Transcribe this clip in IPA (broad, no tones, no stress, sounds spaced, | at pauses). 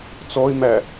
t͡s ɔ ɪ̯ m æ